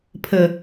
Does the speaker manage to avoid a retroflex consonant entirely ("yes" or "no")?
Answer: yes